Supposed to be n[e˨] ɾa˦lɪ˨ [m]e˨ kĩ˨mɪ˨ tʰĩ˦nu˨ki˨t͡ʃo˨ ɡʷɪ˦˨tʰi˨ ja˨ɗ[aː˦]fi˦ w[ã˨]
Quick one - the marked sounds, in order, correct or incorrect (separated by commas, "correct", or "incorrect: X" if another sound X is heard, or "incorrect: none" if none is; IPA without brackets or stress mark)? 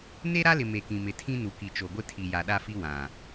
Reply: incorrect: e˦, correct, incorrect: a˦, correct